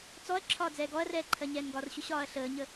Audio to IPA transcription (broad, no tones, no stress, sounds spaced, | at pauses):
t͡s ɔ ɐ̯ ǁʰ ɒː d͡z ɛː ɡ ɔ ɐ̯ r ɛː ǃʰ ɜ ɲ ɛː n ɡ ɒ r ɕ ʊ ɕ ɒː ɐ̯ ɬ əː ɲ ə